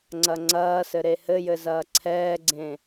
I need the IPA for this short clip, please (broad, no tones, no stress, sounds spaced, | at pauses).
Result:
ŋ͡ǀ ɐ ŋ͡ǀ ɐː s ɘ ɾ e h ɘ j ɘ z ɐː ǀʰ ɛː ɡ͡ǀ ẽ